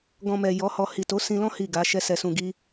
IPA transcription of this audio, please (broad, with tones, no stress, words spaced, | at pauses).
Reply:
ɡɔ̃˧mɛ˨ jɔ˨˦hɔ˧ hi˨ to˨˦sĩ˧lɔ̃˦ hi˦˨ɡa˨˦ ʃɛ˧sɛ˨sũ˨ɡi˧